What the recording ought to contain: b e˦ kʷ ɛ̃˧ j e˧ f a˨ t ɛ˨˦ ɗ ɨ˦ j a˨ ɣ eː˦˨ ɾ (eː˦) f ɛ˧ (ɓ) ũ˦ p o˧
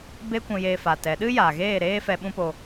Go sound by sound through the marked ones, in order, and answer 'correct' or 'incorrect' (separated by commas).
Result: correct, correct